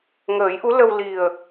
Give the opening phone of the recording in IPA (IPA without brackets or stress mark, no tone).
ŋ